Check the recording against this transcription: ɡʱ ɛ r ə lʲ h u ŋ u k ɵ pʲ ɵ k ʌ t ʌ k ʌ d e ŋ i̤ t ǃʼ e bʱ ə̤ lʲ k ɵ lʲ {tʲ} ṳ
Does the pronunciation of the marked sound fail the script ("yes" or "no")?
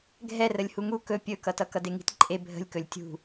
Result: no